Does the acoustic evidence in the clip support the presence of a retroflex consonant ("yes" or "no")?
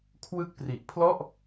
no